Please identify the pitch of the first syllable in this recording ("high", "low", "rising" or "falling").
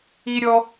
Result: high